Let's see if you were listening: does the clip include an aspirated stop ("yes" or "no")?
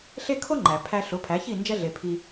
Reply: yes